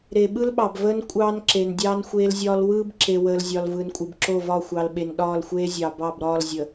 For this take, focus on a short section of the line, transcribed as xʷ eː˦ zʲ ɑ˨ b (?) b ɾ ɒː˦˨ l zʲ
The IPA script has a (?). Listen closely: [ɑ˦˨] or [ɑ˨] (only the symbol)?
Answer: ɑ˦˨